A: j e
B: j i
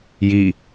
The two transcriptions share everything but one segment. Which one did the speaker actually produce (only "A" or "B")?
B